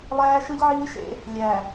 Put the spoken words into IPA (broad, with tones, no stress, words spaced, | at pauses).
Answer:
lˠæː˦ʃɯ˦ʎʕiː˦ʃḛ˦ | lʲæ˨